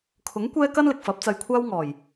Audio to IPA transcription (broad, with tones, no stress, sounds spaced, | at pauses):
kʰ ʊ˨˥ ŋ kʷ ɛː˥ k ɐ˥ n l ɪ˨ k̚ f ɐ˨˥ p̚ t͡s ɐ˧ j kʷʰ aː˥ w ŋ ɔː˨˩ j